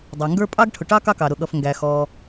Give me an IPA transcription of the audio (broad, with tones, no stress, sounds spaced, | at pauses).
dˤ ɑ˩ ŋ ɡ ə˞˥ pʼ ɑ˥ ɡ ʈʰ ʊ˩ ʈ ɑ˥ k ɑ˥ k ɑ˩ ɾ ʊ˩ ɠ ʌ˩ f ŋ ɡ æ˩ x ɔ˩